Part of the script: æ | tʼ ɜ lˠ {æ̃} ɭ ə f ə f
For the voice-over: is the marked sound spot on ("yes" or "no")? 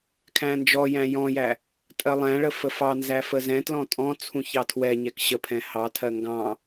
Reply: yes